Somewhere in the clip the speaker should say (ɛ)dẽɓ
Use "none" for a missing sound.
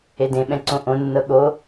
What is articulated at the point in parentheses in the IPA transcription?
e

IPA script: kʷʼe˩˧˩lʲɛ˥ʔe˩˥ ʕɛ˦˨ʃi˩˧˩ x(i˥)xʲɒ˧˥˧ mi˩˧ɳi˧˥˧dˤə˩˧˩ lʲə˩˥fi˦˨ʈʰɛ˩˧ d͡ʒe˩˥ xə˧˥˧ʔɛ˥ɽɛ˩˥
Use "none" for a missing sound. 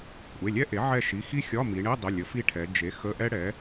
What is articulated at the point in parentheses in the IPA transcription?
i˥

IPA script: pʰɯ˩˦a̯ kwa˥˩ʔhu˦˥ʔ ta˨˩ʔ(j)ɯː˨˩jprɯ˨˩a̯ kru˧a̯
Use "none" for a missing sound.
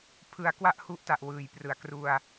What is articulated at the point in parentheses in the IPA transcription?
w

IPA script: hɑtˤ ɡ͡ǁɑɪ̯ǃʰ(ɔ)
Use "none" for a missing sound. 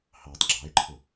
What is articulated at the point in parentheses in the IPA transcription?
ʊ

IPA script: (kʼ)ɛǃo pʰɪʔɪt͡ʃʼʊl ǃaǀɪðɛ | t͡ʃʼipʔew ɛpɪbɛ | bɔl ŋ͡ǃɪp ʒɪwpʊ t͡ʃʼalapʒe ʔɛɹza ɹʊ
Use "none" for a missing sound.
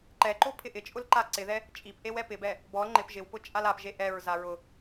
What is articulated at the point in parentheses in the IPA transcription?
ǃ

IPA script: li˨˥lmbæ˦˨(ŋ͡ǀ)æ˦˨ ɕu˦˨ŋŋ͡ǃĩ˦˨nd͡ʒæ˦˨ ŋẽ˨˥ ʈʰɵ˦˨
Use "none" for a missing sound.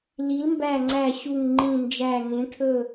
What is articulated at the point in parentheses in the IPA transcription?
ŋ͡ǀ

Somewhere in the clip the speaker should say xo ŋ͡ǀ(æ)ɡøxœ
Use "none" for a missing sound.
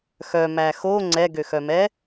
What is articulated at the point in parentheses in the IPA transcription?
ɛ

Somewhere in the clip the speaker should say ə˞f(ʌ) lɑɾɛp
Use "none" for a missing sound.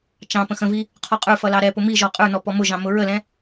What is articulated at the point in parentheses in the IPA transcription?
ʌ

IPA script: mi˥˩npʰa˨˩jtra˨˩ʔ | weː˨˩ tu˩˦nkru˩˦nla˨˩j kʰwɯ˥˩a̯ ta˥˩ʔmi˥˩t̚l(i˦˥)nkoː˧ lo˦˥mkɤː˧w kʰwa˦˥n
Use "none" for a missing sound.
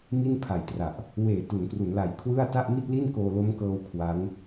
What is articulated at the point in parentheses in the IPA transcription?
i˥˩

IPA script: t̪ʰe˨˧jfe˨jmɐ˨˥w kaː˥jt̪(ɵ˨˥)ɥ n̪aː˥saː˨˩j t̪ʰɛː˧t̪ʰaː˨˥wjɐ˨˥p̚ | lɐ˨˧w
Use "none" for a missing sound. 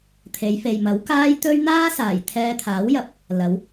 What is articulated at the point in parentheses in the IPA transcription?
ɵ˥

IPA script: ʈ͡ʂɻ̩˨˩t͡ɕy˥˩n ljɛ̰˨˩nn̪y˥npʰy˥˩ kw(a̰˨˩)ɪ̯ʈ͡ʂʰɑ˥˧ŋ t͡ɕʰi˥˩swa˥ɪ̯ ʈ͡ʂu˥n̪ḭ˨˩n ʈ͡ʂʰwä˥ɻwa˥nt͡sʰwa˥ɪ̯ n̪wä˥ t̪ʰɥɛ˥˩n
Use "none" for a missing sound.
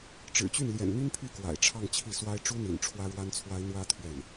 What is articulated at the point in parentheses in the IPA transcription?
a̰˨˩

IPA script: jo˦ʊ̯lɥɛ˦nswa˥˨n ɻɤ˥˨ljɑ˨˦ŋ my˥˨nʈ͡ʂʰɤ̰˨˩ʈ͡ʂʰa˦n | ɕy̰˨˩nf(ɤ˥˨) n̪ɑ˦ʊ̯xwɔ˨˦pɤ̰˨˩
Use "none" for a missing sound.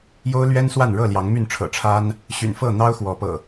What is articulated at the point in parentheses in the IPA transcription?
ɤ˥˨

